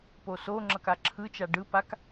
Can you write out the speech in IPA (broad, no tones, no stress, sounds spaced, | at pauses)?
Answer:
p o s o ŋ͡ǁ ʌ k a ǁʰ ɯ t͡ʃ a ɖ ɯ p a k